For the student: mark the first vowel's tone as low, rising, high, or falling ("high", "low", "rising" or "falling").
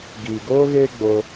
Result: low